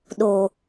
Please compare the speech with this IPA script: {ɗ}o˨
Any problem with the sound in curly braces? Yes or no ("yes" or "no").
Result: no